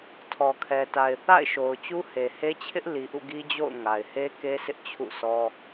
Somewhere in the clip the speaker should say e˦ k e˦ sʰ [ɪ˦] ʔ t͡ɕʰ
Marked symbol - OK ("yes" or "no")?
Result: yes